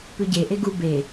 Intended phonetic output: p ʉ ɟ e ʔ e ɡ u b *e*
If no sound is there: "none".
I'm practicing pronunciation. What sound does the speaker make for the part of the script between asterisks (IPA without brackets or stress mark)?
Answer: e